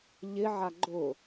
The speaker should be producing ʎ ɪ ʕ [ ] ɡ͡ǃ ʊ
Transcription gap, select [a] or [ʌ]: a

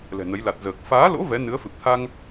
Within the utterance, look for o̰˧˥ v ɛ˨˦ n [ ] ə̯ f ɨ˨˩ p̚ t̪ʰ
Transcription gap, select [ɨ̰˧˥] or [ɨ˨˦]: ɨ˨˦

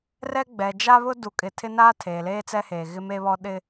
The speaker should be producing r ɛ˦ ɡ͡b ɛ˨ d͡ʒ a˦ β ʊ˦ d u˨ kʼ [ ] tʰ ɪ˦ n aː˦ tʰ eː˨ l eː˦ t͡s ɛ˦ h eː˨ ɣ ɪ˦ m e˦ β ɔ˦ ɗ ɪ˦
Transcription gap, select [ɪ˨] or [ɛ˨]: ɪ˨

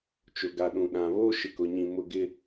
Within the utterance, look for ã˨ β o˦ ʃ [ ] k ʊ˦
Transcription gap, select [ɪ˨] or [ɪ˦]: ɪ˦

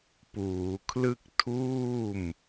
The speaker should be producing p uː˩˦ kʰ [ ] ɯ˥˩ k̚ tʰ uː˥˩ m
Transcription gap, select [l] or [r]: l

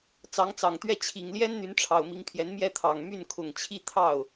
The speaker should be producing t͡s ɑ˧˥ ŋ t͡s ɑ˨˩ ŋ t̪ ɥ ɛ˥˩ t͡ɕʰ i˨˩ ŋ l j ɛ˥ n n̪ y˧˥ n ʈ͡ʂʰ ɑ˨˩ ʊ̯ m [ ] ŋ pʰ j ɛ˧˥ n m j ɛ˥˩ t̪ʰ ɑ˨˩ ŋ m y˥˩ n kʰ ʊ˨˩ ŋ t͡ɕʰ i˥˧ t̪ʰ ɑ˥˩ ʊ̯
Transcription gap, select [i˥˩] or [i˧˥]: i˧˥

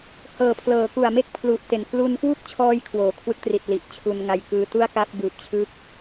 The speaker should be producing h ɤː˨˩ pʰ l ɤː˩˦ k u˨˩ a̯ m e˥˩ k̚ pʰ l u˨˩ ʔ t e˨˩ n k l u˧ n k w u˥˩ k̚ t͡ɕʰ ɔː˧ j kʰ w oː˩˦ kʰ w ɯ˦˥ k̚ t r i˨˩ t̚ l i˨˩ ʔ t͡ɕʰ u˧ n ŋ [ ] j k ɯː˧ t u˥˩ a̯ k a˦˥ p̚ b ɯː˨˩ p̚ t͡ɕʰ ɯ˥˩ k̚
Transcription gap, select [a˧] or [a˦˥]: a˧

